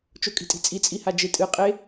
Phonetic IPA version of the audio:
t͡ʃ o kʼ i̤ tʼ i̤ t͡sʼ i t͡sʼ i h a d͡ʒ e tʼ ɨ qʼ e

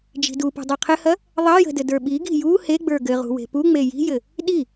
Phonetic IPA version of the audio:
d͡ʒ i̤ d u p ṳ dˤ e qʰ ɘ h ɐ | ðˤ ɐ j ə̤ d ɘ d ə˞ ɓ i ɡ i̤ j u h e ɡ͡b ə˞ ɡ ɘ ʁ ṳ w e̤ p u ŋ͡m e j i̤ j ɘ | ɗ i

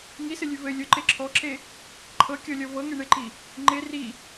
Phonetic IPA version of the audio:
ŋ i s ɘ lʲ ʉ v ɘ lʲ o ǃ e ǁʰ ɔ ǁ e | ǃʰ ɤ kʲ ɔ lʲ ɔ v ɤ ŋ e ɳ e ǃ i | ŋ͡ǃ e r i

